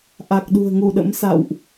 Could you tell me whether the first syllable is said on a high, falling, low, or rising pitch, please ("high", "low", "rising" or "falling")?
low